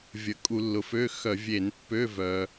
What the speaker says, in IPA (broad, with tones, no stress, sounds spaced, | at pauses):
vʲ ə˩ kʼ u˧˩˧ lː ʊ˩ f ø˧˥˧ x œ˧˩˧ vʲ e˧˩˧ n pː ø˧˥˧ v œ˩